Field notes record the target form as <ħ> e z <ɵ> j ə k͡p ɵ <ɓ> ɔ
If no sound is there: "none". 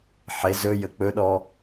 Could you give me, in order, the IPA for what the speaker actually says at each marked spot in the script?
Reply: ħ, ɵ, ɗ

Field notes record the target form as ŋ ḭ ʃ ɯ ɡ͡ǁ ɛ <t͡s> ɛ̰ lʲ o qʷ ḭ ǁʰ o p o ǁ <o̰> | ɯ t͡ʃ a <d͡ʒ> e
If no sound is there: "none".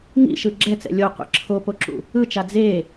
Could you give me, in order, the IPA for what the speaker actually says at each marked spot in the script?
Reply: t͡s, ṵ, d͡z

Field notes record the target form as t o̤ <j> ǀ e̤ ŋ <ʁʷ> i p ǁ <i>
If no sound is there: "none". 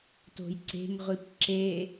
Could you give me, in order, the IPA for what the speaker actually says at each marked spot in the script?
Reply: j, ʁʷ, e

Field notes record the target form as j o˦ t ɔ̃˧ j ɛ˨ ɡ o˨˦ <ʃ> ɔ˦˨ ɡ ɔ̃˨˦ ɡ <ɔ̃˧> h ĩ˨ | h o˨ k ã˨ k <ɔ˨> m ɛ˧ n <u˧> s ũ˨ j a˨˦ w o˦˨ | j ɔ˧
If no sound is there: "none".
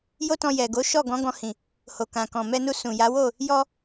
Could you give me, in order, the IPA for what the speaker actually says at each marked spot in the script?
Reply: ʃ, ɔ̃˧, ɔ̃˨, u˧

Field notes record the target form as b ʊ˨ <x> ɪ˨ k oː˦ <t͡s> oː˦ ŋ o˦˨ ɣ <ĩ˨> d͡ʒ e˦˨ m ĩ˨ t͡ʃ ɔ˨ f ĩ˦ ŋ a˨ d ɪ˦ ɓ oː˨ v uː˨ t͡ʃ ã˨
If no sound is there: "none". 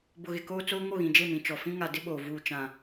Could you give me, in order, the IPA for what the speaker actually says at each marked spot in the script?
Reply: ɣ, t͡s, ĩ˨

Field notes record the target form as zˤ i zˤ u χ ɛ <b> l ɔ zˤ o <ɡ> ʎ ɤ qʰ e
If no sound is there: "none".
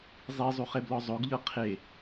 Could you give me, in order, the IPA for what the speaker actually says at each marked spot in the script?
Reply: b, ɡ

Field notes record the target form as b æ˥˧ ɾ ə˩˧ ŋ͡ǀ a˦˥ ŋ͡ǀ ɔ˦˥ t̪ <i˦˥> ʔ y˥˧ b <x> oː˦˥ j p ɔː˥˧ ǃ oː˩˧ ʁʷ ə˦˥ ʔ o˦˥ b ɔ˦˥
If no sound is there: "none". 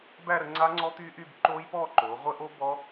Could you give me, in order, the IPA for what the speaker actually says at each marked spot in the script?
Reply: y˦˥, ǃ

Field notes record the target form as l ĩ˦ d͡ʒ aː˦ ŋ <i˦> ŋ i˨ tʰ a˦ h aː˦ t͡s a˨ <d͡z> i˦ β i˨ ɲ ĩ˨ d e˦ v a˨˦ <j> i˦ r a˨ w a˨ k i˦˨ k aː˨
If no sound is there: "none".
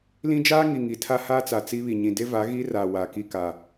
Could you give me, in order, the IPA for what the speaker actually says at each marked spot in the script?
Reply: i˨, t͡s, ɣ

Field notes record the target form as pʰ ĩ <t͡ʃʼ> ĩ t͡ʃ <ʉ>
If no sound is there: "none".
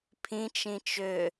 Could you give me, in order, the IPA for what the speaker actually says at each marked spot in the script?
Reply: t͡ʃ, ø

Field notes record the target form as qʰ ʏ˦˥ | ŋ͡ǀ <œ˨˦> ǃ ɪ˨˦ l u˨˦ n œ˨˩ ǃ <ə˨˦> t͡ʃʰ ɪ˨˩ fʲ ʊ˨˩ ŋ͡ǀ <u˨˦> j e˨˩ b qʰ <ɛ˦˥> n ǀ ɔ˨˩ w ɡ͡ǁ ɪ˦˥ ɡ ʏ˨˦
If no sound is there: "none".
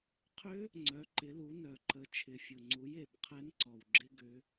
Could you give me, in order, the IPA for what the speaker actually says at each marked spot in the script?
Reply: œ˨˦, ə˨˦, u˨˦, ɛ˦˥

